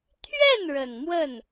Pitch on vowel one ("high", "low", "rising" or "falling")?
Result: falling